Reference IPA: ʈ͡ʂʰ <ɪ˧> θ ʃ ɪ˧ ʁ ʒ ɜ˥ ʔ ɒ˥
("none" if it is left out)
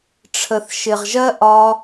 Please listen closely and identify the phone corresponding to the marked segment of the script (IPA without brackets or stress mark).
ə˧